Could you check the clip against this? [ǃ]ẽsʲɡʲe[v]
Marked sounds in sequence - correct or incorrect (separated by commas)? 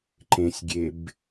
correct, incorrect